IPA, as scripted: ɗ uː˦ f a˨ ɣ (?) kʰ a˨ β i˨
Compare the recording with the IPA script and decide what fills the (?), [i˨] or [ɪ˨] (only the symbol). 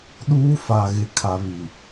ɪ˨